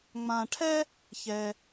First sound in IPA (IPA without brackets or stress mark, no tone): ŋ͡m